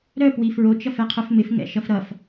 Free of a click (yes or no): yes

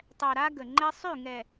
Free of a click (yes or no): no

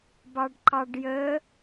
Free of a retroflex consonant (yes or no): no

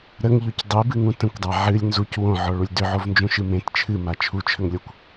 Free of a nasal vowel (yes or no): no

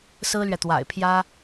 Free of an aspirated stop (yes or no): no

